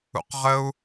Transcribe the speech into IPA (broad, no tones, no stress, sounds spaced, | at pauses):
ṵ q ʁ ə u̯